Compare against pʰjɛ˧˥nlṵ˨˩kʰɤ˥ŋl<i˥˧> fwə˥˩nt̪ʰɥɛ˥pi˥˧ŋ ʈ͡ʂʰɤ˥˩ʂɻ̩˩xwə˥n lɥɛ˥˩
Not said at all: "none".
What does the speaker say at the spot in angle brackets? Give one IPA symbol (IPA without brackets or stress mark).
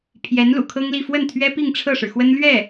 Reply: i˥˧